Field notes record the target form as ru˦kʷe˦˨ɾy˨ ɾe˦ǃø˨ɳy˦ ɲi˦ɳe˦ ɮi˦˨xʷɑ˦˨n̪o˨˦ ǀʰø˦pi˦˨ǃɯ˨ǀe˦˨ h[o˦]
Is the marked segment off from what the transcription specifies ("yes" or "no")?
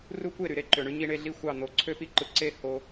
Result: no